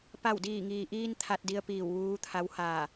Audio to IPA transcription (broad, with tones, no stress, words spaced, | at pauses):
pa˧˩wdiː˧˩ŋiː˩ʔiː˧n t̪ʰa˧t̚di˧ə̯ piː˧˩w ʋuː˧˥t̪ʰa˧˥whaː˧˩